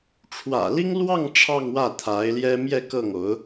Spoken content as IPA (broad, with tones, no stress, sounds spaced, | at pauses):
ʈ͡ʂʰ w ä̰˨˩ l i˥ ŋ l w ɑ˥˧ ŋ ʈ͡ʂʰ ɑ˥˧ ŋ w ä˥˩ t̪ʰ a˧˥ ɪ̯ l j ɛ˥ m j ɛ˥˧ k ɤ˥˩ ŋ o˧˥ ʊ̯